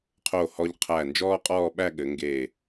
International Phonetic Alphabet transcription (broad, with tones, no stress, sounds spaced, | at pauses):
qʰ o˧˩ h ɔ˧ ʎ qʰ æ˧˩ n d͡ʒ ɔː˥ qʼ ɔː˥˧ ɓ æ˥˧ ɠ ɘ˩˧ ŋ ɡ e˧˩